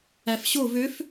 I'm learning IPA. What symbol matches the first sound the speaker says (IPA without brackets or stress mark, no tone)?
æ